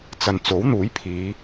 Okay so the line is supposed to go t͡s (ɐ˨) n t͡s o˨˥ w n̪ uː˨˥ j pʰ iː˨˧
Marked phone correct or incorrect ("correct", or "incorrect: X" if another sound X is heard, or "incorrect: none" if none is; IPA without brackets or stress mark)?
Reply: correct